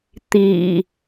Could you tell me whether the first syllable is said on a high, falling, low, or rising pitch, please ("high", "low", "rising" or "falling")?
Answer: low